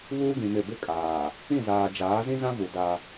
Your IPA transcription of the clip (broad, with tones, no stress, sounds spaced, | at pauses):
β uː˦ ɡ ĩ˨ m ɪ˦˨ b ɪ˦ kʼ aː˨ | ĩ˦˨ z aː˨ d͡ʒ aː˨˦ z ĩ˦ z ã˦ v u˨ d a˦